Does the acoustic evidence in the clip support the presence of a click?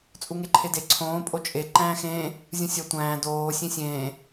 yes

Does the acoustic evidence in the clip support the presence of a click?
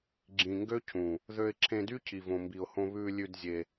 yes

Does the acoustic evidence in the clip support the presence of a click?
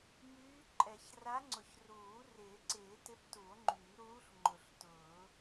yes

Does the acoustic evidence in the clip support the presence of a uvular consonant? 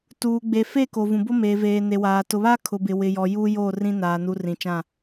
no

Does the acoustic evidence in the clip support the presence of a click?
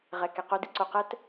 yes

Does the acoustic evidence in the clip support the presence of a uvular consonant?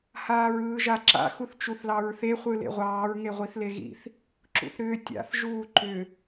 yes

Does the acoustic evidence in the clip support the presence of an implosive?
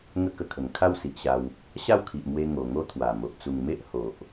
no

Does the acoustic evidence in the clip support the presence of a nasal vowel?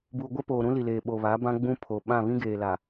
yes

